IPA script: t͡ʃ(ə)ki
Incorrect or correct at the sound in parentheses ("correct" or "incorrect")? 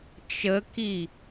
correct